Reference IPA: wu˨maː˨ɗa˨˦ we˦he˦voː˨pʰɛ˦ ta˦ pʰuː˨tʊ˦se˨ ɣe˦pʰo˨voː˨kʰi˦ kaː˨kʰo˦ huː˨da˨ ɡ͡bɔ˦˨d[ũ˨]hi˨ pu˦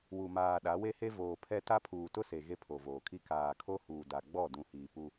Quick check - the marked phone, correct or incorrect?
correct